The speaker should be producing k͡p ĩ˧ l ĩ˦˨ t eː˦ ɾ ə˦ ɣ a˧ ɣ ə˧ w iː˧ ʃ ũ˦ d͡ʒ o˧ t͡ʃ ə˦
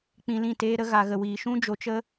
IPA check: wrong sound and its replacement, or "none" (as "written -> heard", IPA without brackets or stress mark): none